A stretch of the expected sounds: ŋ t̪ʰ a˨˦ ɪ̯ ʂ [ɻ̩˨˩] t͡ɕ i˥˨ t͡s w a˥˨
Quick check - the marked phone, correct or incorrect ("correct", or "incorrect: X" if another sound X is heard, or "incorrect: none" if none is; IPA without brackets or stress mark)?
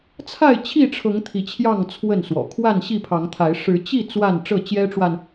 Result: incorrect: ɻ̩˨˦